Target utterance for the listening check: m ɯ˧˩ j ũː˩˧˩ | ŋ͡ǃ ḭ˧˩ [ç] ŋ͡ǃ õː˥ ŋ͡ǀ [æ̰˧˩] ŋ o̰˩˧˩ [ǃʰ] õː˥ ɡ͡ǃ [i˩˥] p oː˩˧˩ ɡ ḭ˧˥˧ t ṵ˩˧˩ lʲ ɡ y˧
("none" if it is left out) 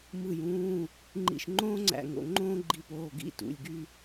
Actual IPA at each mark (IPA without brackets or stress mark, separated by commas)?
ʃ, æ̰˧˩, ŋ͡ǃ, i˧